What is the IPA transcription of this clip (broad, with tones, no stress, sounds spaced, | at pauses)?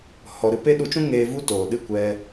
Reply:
h ɔ˨ ɾ ɨ˧ p e˧ ɗ u˧ t͡ʃ ũ˦ ŋ eː˧ v u˦ t oː˨ ɗ ɨ˦˨ kʷ ɛ˧